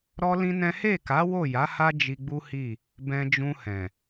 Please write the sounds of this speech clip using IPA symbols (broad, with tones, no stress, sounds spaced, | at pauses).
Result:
ɾ ɔ˦ l ĩ˦ n ɛ̃˦ h e˦˨ k a˨˦ w o˦˨ j a˨˦ h a˦ d͡ʒ i˧ ɡ͡b u˦ h i˦˨ | b ɛ̃˧ d͡ʒ ũ˧ h ɛ̃˨